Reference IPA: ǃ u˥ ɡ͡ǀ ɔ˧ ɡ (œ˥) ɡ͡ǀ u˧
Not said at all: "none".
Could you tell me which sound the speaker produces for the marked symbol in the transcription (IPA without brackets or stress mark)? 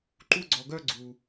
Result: œ˥